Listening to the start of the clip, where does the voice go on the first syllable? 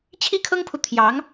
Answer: high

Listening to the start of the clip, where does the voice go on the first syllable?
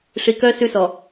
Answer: low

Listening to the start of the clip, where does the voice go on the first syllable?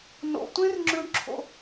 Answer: high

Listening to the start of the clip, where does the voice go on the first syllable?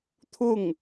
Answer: falling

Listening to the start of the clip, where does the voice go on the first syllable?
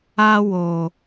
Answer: high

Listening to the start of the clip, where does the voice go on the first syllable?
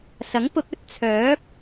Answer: rising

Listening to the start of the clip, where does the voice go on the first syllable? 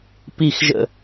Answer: falling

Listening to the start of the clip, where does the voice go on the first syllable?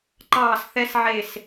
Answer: falling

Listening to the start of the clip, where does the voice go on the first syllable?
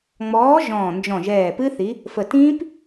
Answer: rising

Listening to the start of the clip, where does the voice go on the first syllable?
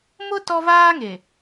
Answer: high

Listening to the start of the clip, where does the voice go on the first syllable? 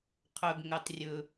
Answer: low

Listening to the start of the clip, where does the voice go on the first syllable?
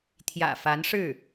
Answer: low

